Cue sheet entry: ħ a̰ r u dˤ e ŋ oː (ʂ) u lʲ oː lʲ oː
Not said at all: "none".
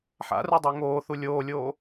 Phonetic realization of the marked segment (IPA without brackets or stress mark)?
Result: θ